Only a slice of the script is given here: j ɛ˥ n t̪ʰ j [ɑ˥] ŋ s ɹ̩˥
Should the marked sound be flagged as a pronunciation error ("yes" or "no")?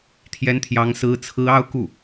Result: no